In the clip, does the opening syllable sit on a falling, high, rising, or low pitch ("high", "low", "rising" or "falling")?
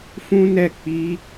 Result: high